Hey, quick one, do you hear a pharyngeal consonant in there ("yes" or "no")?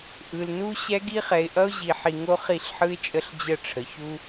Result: yes